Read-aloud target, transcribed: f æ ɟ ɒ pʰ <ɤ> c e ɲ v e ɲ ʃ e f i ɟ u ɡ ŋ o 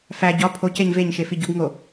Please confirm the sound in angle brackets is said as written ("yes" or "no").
no